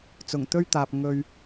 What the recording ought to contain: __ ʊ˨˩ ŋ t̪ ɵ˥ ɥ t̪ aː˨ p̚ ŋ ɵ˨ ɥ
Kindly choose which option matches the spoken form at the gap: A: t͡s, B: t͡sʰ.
A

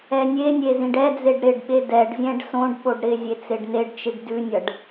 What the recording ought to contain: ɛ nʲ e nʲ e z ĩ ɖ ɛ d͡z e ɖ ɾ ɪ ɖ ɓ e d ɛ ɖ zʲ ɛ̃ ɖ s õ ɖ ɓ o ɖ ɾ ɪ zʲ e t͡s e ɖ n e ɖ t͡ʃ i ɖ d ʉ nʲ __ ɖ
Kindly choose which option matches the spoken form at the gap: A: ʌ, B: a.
A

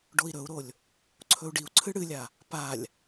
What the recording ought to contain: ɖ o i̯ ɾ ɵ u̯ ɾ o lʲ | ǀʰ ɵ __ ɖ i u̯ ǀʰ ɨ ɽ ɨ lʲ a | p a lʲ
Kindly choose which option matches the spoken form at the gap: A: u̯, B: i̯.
A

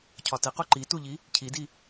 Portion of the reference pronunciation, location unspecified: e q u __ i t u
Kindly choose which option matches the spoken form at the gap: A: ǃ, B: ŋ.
A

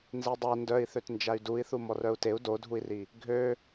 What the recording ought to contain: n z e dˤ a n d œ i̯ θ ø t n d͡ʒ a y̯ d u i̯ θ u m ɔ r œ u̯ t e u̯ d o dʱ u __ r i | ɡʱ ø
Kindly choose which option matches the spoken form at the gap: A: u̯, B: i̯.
B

